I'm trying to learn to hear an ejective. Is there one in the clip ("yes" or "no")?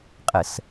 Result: yes